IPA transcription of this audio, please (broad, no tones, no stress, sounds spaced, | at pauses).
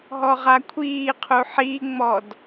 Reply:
ɦ ɔ ʁ a kʷʰ iː qʰ u ħ i ŋ͡m ɔ d